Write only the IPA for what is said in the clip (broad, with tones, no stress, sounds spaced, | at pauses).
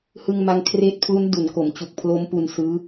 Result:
h ɯ˧ ŋ m a˧ ŋ kʰ r eː˦˥ t̚ pʰ l u˦˥ n d u˩˦ n k o˩˦ m t͡ɕ u˨˩ k̚ pʰ l o˦˥ m p u˧ n s ɯː˦˥